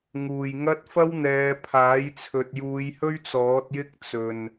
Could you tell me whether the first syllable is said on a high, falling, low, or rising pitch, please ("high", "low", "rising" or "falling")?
low